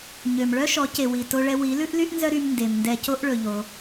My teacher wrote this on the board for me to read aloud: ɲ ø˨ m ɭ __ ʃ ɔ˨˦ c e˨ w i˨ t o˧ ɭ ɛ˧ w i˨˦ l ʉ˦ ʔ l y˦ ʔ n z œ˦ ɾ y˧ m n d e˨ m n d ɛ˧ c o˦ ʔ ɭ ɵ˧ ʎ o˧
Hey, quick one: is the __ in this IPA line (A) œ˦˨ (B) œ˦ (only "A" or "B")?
B